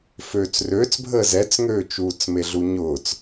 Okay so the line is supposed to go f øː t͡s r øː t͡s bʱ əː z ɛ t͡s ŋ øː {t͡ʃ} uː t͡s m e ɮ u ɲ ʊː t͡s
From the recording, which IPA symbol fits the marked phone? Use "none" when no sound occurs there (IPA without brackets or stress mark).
t͡ʃ